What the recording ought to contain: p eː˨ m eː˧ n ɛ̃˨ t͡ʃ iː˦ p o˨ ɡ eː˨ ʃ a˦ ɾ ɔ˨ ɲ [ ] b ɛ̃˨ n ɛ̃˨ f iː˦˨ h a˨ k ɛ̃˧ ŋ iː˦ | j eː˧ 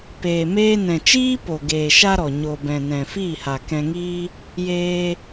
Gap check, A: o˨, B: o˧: A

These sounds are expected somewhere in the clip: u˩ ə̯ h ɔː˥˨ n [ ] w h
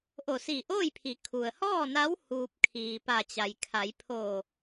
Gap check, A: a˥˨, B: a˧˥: B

